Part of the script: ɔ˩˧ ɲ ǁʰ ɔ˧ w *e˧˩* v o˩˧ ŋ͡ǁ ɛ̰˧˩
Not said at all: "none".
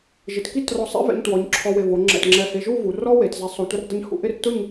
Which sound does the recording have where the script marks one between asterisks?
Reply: e˧˩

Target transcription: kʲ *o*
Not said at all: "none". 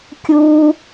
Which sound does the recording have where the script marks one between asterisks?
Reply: u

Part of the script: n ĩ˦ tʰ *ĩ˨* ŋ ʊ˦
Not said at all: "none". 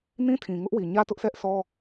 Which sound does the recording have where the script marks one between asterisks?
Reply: ĩ˨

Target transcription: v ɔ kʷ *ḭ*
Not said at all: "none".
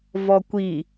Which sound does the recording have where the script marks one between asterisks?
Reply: i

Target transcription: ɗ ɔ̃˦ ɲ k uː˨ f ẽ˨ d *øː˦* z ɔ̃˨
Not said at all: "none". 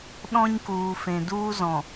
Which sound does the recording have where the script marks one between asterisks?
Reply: uː˦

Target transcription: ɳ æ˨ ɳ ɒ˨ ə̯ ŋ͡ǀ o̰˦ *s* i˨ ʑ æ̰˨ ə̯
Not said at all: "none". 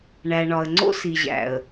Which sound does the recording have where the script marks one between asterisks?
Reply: s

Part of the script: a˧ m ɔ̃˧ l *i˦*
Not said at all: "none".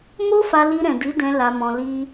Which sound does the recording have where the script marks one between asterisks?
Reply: i˦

